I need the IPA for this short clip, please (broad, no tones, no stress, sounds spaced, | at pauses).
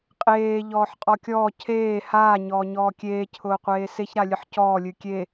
qʼ eː ʎ ɔː ħ qʼ ɔ kʲ ɔː cʰ eː h aː ɲ ɔː ɲ ɔː kʲ eː cʰ ʊː qʷ eː s e ç ɾ a lʲ ɨ ħ c ɔː lʲ ɨ kʲ e